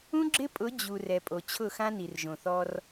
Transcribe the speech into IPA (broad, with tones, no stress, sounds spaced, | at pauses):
ũ˦ ɡ͡ǁ ɪ˦ pʼ ʊ˨˦ d͡ʑ u˨ r ɛ˨ pʼ o˨ t͡ɕʰ ʊ˦˨ x ã˦ n i˨ r ʒ õ˨ θ ɔ˦ r